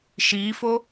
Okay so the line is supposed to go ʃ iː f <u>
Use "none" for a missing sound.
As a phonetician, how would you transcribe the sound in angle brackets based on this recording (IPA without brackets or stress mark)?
o